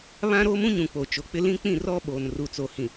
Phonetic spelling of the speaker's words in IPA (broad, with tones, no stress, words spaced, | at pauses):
βã˦ɾoː˦mũ˦ɲũ˨ k͡po˨t͡ʃo˨k͡pɪ˦ lĩ˦k͡pĩ˦˨rɔ˦ ɓoː˨nru˨t͡so˨hĩ˨